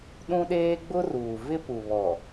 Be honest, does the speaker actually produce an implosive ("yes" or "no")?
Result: yes